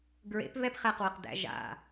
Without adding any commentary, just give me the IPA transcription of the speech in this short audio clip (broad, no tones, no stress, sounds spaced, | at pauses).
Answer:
ɡ ɹ ḛ p β ɛ p χ ɛ q w œ q d æ̰ ʒ a̰